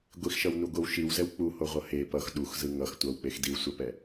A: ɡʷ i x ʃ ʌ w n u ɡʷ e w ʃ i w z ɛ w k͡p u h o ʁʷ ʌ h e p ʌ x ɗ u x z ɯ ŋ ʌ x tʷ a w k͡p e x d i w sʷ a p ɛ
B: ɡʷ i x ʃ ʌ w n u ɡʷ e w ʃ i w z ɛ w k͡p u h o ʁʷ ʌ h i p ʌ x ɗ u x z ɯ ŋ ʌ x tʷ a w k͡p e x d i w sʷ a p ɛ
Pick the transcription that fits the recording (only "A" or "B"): A